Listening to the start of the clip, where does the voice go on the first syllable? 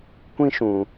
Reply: high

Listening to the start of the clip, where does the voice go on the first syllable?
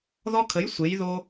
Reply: high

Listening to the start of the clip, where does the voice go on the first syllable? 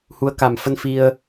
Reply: rising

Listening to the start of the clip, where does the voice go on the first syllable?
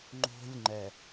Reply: high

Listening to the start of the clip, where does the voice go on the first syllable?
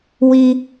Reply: high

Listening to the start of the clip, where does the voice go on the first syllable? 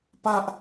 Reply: high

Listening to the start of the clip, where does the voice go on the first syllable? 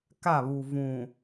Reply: falling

